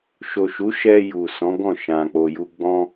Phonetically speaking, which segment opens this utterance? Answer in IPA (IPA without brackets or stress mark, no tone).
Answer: ʃ